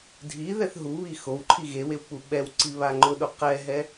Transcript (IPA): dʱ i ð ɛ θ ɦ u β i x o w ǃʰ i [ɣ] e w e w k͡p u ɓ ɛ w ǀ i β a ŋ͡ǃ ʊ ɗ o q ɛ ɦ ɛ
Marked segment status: correct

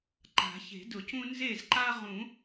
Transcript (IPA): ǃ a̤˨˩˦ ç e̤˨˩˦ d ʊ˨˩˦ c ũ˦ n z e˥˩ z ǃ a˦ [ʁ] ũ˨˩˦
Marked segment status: correct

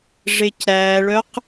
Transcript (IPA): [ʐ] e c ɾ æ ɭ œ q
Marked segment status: correct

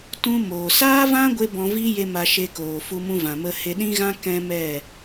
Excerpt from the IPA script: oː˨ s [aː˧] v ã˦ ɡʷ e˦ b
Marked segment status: incorrect: aː˦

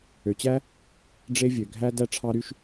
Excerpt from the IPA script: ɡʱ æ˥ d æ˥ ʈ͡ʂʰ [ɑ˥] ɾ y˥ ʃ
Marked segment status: correct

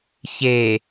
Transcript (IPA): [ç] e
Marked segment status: correct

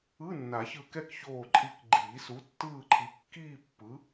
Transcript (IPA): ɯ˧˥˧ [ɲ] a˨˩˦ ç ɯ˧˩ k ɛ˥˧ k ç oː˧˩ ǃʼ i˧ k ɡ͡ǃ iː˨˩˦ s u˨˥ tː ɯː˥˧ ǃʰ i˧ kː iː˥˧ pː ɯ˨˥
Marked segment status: incorrect: nː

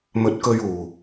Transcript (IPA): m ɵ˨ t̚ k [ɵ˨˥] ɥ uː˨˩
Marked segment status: incorrect: ɵ˧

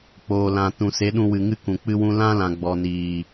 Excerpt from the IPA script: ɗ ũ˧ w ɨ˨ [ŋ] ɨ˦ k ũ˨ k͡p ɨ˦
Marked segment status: correct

